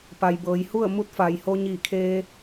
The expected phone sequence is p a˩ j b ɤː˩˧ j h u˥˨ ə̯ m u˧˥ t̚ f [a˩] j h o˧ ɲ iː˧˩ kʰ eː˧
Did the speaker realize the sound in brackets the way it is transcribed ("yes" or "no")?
yes